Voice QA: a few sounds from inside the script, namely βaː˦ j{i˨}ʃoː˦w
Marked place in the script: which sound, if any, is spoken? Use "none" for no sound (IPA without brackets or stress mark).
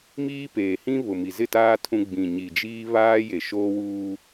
e˨